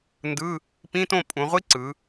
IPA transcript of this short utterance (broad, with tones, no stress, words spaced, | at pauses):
ndɯ˧˥˧ | pĩ˧˥˧tõ˥˨ pʼũ˩˧ʁʷi˦˥ ǀɯ˩˧